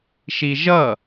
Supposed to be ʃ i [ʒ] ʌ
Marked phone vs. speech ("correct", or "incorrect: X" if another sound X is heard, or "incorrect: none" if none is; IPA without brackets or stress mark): correct